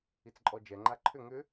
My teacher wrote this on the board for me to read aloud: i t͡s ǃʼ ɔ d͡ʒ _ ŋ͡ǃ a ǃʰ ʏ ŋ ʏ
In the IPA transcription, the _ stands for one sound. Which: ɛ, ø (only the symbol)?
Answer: ɛ